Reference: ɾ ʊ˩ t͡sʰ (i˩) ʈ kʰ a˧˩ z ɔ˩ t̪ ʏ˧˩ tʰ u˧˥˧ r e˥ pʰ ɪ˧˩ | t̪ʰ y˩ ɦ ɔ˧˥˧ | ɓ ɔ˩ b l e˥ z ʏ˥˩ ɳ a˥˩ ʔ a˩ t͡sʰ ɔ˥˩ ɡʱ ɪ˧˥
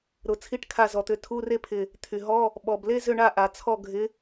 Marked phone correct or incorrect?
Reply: incorrect